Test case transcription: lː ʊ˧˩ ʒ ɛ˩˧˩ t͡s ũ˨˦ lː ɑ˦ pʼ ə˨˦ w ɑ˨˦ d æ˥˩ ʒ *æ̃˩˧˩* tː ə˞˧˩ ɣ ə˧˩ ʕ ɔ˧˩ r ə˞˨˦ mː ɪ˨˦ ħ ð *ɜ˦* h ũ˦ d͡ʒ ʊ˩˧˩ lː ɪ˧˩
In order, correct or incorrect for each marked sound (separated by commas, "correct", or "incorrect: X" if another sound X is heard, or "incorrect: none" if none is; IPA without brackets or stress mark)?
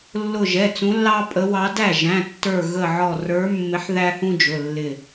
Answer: correct, incorrect: æ˦